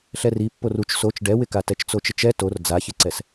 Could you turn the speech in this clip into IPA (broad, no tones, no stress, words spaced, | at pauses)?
ɬɛripːor ut͡ʃ sot͡ʃ ɖɛwɪka tɛt͡ʃt͡sot͡ʃɪt͡ʃɛ tor d͡zaçɪǀɛs